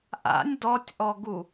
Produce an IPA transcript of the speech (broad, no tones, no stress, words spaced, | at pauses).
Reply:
ʔa̰nʲ dɔtʲʔɔɡu